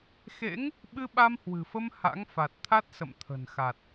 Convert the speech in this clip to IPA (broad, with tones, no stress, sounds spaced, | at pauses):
x ḛ˧˥ ŋ | ɓ ɨ˧ ɓ a˧ m h w ɨ̤˨˩ f ə˧ m h a̰˧˥ ŋ f a˨˩ t̚ t̪ʰ a˦˥ t̚ s ə̰˧˨ m t̪ʰ ə̤˨˩ n x a˨˩ t̚